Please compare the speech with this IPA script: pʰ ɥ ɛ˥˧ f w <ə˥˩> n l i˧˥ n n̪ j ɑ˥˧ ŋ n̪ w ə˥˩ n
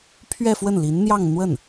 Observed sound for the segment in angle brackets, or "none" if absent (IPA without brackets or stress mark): ə˥˩